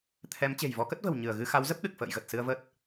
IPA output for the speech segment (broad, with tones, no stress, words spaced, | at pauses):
t̪ʰɛ˨˦m t͡ɕe̤˨˩jvɔ˨˦kə˦˥t̚və̤˨˩w ɲɨ˧˩ə̯ ɣɨ˧xa˨˦w zə˦˥p̚ɗɨ˨˩k̚ fə̰ː˧˨jɣə˨˩t̚ sɨ˧ə̯və˦˥t̚